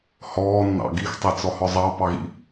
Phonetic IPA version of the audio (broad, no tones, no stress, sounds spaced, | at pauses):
h ɔː nː ɑ̰ ɡ i x tˤ e t͡s ɔ h ɔ zˤ ɑ p ɑ ɣ ḭ